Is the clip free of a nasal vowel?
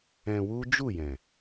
no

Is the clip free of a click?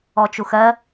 yes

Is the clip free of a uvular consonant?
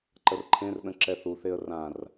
yes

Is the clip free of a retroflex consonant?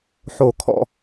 yes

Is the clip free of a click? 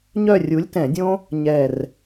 yes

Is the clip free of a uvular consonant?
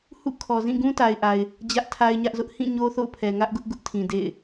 yes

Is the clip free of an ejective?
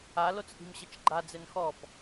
yes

